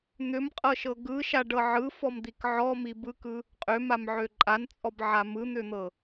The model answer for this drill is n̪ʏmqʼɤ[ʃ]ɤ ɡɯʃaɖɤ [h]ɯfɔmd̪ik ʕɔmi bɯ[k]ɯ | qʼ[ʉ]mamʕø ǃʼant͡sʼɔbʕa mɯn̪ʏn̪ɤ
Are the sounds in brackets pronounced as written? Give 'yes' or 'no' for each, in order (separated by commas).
yes, no, yes, no